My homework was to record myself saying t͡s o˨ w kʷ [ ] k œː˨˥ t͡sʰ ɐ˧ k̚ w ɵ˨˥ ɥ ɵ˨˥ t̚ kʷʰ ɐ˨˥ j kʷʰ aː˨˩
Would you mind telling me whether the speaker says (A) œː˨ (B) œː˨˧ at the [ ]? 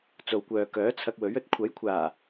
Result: A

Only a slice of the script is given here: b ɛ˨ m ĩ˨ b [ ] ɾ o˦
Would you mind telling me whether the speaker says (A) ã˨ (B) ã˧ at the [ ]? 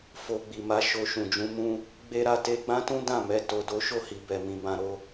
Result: B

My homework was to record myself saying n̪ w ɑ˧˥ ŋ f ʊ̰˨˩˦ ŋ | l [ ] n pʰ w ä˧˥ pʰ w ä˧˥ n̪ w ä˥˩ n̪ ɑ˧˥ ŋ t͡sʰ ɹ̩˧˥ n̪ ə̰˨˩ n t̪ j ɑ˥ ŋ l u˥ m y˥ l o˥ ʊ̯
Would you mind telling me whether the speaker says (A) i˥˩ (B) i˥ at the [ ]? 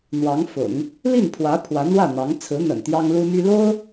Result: A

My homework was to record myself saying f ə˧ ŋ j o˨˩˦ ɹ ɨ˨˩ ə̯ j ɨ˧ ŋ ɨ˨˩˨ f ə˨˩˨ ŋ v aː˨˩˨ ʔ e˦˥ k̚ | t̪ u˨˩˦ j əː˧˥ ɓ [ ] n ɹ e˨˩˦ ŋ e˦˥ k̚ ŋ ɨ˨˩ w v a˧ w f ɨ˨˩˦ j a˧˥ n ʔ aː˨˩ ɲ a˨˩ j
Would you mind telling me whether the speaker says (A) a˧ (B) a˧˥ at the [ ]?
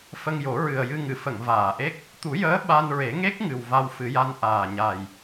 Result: A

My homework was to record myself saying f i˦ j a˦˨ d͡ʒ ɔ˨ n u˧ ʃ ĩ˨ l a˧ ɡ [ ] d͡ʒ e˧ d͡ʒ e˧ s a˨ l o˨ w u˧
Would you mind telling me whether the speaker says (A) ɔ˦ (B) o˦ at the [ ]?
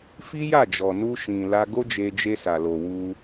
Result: B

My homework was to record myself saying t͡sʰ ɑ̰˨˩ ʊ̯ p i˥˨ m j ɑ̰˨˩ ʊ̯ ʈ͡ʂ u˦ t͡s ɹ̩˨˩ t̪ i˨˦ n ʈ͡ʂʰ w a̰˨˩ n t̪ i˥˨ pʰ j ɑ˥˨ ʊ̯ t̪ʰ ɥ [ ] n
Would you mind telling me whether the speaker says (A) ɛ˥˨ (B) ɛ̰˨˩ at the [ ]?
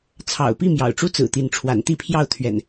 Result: B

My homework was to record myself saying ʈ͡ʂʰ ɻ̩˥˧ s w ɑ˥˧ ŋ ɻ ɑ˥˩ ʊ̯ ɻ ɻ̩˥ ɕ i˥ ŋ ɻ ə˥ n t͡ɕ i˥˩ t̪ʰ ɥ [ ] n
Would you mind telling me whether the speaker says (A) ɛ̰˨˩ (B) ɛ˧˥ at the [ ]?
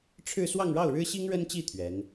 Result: B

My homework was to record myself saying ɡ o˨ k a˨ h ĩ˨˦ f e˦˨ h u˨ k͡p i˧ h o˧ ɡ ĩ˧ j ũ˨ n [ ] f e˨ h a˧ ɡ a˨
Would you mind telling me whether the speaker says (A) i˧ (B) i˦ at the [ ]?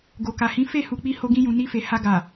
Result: A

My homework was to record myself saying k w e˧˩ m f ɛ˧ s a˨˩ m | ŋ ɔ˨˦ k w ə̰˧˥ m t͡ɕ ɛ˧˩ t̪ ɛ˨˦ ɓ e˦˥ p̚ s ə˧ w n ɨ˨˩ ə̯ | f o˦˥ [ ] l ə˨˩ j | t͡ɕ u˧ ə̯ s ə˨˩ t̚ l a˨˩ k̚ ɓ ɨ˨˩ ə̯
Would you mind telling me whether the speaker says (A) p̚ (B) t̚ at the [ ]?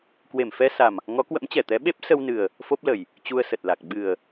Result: A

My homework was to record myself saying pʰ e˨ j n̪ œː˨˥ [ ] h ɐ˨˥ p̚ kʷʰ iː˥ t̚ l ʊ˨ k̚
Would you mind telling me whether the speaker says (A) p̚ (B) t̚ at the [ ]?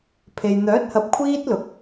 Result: B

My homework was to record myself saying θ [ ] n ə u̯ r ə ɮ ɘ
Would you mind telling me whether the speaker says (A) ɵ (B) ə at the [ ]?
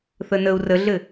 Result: B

